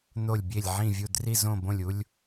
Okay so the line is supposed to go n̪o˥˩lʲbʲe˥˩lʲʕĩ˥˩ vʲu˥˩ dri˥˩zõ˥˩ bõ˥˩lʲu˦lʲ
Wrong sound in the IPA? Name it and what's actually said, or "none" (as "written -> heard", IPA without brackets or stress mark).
none